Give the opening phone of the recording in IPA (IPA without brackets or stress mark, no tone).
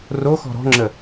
r